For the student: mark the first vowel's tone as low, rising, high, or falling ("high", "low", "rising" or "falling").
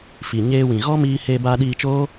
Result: low